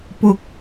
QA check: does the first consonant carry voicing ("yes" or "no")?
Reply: no